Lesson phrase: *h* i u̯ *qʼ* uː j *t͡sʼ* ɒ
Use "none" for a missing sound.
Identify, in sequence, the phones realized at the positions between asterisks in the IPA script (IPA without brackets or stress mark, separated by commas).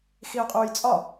x, qʼ, t͡sʼ